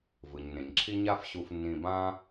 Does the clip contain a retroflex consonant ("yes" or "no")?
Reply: no